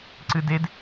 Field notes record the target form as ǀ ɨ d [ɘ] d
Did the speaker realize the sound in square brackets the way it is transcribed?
no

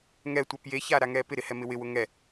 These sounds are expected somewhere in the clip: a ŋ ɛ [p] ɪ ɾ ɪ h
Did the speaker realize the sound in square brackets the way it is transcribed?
yes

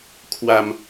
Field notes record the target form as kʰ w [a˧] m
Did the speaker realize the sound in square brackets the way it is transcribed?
yes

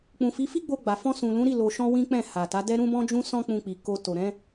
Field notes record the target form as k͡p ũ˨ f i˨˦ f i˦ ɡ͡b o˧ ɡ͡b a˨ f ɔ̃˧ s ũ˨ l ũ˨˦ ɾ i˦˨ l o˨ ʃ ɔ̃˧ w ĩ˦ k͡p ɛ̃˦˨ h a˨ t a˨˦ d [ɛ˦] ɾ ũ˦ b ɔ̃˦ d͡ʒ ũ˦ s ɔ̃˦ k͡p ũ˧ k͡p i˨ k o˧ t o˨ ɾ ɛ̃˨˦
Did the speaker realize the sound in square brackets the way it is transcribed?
yes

